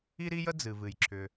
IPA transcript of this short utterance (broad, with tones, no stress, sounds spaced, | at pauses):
i˥ ɾ i˥ j ə˥ d͡z ɨ˩ v ɨ˩ j ǁʰ ʏ˩